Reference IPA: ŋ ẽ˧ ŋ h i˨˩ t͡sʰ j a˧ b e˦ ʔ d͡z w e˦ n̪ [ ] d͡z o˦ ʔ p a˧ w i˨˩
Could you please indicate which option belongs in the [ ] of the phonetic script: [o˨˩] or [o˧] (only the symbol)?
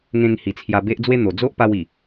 o˨˩